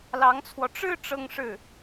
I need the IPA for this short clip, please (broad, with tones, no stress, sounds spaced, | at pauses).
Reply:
l ɑ˧˥ ŋ t͡sʰ w ɔ˧ ʈ͡ʂ ɻ̩˥˧ ʈ͡ʂ ɤ˥˧ ŋ ʂ ɻ̩˥˩